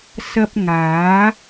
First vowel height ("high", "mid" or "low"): low